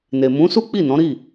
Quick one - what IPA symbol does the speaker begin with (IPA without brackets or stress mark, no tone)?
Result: n